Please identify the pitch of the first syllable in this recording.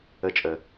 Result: high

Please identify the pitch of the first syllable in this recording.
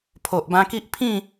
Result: low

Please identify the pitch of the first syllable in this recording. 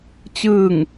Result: falling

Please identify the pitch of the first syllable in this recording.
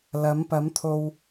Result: rising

